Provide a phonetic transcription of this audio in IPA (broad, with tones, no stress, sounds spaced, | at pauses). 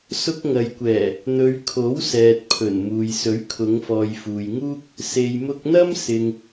s ʊ˧ k̚ ŋ ɐ˨ j kʷ ɛː˨˩ | n̪ ɵ˨˧ ɥ kʰ o˨˥ w s ɛː˨ t̚ pʰ ɵ˨˩ n m uː˨ j s ɵ˨˥ ɥ kʰ ʊ˨˧ ŋ f ɔː˨ j f uː˨ j ŋ uː˥ k̚ | s e˨ j m ʊ˧ k̚ n̪ ɐ˥ m s ɪ˧ ŋ